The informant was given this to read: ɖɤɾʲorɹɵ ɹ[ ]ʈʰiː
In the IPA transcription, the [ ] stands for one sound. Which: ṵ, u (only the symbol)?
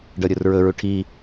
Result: u